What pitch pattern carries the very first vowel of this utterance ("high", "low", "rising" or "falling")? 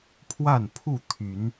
falling